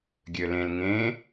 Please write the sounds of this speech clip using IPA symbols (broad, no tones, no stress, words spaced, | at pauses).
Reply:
ɡʲølẽl ŋẽ